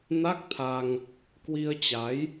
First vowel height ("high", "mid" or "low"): low